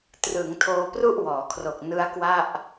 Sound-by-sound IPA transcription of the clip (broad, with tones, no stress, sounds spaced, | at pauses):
t r ɯ˩˦ ŋ tʰ oː˧ p r u˥˩ ʔ w ɔː˩˦ kʰ r o˨˩ k̚ n ɯ˦˥ a̯ k w a˥˩ ʔ